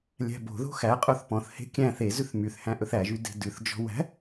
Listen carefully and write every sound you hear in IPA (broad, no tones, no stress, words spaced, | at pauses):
lʲæ̤bo̤ðo̤ xæqʼoθ pɔ̃θhe̤ kʲæ̃ θezʉθ myθ hæ̃ʔɵθæʒy de̤dʉθd͡ʒɔ̤ wæ̤